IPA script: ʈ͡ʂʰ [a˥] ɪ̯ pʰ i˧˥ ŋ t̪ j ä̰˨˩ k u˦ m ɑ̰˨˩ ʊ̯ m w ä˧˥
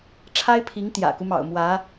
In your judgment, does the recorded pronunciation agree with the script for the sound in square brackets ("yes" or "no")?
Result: yes